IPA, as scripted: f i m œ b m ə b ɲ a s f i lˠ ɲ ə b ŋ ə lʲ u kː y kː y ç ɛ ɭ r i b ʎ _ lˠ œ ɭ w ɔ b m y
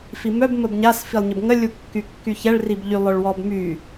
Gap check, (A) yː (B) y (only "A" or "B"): B